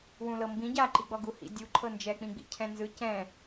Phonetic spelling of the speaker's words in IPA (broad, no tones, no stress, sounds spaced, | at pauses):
w ũ l ɤ m b ĩ ɟ a ǃ i ɡ͡b ɔ ɡ u h ḭ dʲ u ǃʰ ɤ n d͡ʒ ɛ k͡p ĩ ɡ͡b ḭ cʰ ɛ̃ n z ɯ c ɛ̃